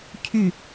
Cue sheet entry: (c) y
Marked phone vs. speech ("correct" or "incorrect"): incorrect